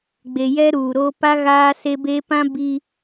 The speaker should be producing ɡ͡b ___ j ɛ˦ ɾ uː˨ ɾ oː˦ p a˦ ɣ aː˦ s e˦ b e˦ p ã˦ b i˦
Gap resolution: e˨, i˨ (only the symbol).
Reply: e˨